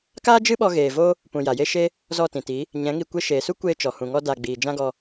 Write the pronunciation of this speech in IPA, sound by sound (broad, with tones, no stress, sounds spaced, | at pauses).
k aː˦ d͡ʒ ɨ˦ ɓ ɔ˧ ɣ eː˨ v o˦ | p ũ˨ j a˨ j e˦ ʃ e˦ | z ɔ˦˨ t ĩ˨ t i˨˦ | ɲ ɛ̃˨˦ ŋ i˧ kʷ e˧ ʃ eː˨ s u˦ kʷ eː˧ t͡ʃ ɔ˨ h ũ˨ ŋ ɔ˧ d a˧ ɡ͡b iː˨ d͡ʒ ã˦ ɡ ɔ˧